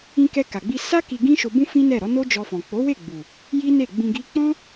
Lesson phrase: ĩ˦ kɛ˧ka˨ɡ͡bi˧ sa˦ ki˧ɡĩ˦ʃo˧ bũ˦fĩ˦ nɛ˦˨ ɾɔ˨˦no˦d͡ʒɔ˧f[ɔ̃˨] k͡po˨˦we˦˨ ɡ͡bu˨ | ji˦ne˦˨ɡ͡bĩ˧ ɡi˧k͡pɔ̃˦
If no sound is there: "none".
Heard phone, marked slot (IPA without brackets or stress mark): ɔ̃˨